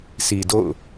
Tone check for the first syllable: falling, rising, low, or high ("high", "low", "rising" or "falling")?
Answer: low